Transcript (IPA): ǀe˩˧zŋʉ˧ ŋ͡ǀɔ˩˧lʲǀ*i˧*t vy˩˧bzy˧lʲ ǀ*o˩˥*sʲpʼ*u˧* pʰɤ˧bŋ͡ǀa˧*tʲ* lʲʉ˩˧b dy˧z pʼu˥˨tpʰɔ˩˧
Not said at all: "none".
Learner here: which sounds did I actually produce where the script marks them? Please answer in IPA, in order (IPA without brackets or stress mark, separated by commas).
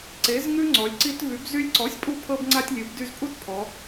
i˧, ɔ˩˥, u˧, tʲ